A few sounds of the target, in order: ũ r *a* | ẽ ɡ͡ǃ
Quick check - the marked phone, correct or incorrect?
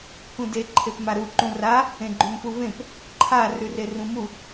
correct